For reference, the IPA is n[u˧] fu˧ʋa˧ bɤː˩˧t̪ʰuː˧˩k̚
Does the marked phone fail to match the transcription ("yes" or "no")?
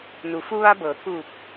yes